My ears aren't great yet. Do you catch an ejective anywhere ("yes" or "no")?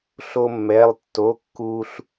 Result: no